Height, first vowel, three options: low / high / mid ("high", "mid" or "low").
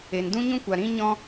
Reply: mid